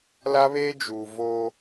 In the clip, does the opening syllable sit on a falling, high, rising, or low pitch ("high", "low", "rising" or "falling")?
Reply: high